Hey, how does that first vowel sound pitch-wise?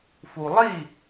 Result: low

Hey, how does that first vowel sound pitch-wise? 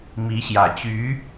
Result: rising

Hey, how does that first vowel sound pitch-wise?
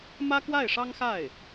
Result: high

